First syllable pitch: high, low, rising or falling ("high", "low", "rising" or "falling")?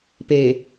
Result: low